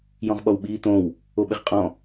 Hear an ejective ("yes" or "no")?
yes